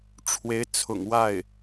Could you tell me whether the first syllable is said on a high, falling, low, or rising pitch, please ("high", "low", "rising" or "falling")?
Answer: rising